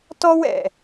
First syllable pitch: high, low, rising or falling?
high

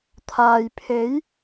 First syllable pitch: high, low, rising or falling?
low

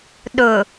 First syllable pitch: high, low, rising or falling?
low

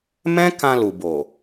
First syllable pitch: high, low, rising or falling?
high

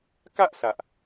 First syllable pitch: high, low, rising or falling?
high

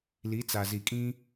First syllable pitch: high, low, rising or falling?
rising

